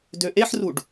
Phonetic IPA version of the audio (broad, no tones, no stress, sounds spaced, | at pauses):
d ø ʔ e ħ r u ɖ